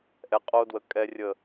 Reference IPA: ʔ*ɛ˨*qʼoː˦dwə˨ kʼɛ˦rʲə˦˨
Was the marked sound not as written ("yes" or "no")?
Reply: no